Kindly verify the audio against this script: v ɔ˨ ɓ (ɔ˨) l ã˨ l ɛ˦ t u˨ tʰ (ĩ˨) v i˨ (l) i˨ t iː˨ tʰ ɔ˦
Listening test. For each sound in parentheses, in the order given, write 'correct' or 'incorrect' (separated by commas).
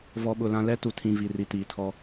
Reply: incorrect, correct, incorrect